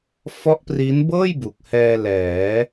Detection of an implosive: absent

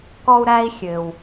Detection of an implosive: absent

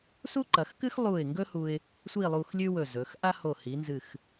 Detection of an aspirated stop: absent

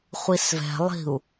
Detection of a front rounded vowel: absent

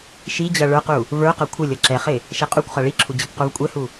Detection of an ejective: present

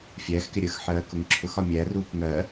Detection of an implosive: absent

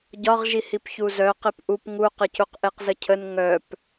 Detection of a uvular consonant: present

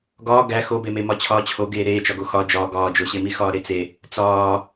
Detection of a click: absent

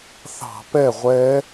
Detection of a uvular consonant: present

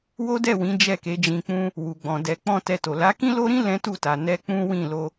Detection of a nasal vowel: present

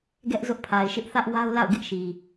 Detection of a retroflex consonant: absent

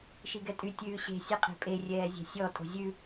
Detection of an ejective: present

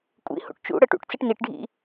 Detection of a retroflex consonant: present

